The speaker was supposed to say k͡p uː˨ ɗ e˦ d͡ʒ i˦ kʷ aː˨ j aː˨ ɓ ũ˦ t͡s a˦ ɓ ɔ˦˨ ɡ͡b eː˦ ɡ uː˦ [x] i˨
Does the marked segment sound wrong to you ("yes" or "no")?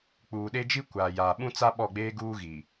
yes